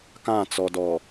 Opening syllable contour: falling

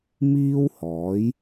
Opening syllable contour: high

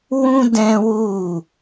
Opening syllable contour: high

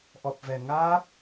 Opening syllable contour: low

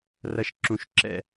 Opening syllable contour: low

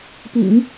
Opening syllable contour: low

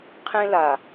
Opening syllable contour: high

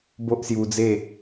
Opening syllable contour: high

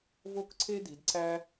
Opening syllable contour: falling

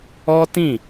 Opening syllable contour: high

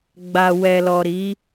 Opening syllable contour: low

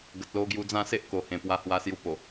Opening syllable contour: low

